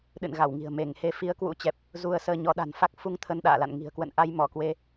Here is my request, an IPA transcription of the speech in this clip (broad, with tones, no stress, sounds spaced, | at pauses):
ɗ ɨ̰˧˨ n ɣ a˧˩ w ŋ i̤˨˩ ə̯ m e˧˩ ŋ h e˨˦ f i˨˦ ə̯ k w ṵ˧˥ t͡ɕ ɛ˨˩ p̚ | z u˧ ə̯ s əː˧ ɲ ɔ˨˦ ɗ a̤˨˩ n f a˦˥ k̚ f u˧ ŋ t̪ʰ ə˧ n ɗ a̰ː˧˨ l a̰˧˨ n ŋ i̤˨˩ ə̯ k w ə̰˧˨ n ʔ a˧ j m ɔ˧˩ k w e˧